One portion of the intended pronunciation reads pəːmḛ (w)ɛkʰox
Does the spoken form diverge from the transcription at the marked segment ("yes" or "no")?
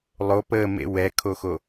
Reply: no